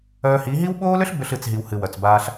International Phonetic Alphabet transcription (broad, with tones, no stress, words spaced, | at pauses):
œː˧hi˨˦ɦi˦w ɓoː˦lʏ˦ɬ bʏ˧ɬ ɨ˨t͡sɦi˨w hɨ˨wœ˨t͡sbaː˧ɬ